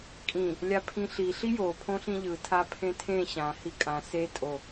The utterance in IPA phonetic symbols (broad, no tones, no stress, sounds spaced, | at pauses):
kʼ ĩ | lʲ a pʰ ĩ ɬ i ɬ i j o pʰ õ ɬ ĩ ʎ ɯ tʰ a pʰ ẽ tʰ ẽ ɕ ã h i kʼ ã s e tʼ o